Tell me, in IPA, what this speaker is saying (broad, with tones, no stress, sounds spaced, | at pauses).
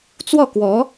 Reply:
t͡s w ɔ˥˩ k w ɔ˧˥